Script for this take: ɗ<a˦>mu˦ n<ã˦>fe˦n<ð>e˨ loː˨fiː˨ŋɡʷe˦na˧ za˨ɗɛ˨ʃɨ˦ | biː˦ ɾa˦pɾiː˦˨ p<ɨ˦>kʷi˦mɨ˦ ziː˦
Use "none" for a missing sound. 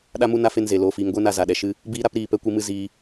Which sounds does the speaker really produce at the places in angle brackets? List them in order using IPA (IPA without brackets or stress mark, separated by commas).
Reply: a˦, a˦, z, ɛ˦